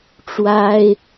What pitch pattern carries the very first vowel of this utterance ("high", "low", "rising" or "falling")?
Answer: high